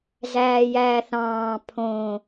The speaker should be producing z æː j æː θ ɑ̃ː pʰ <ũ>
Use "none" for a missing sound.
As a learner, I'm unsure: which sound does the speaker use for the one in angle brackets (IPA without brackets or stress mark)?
õ